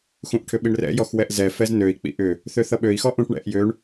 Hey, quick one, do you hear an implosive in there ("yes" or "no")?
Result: yes